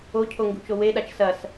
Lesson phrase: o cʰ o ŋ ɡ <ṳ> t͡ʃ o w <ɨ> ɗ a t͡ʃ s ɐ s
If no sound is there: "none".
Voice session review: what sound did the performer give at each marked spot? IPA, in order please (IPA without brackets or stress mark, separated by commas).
ṳ, e